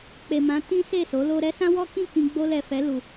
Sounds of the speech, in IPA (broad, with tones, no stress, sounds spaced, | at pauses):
k͡p e˨ m ã˨˦ t ĩ˦ s e˦˨ s o˨˦ l o˧ ɾ ɛ˦ s ã˦ w ɔ˦ k ĩ˦˨ k ĩ˧ ɡ͡b o˧ l ɛ˨ f ɛ˨˦ l u˧